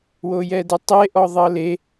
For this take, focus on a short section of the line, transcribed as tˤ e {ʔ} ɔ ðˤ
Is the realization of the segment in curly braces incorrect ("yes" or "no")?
no